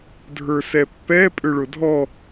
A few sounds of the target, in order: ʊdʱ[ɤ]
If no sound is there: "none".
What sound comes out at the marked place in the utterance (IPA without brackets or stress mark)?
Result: ɔ